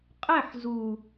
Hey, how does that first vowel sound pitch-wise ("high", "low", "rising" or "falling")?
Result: falling